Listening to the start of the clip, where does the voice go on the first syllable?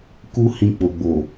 high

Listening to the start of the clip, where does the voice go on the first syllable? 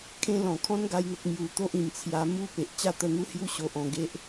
high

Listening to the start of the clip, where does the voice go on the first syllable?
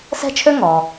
high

